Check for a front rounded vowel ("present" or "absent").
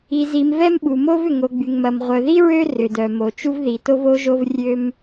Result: present